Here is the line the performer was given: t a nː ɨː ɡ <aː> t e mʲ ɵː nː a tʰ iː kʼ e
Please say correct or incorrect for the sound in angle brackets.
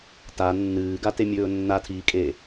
incorrect